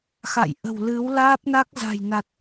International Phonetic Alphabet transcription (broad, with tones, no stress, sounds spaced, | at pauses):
x a̰˧˨ j ʔ ə̤˨˩ w l ɨ˨˦ w l aː˦˥ p̚ n a˦˥ k̚ z a̤˨˩ j n a˨˩ t̚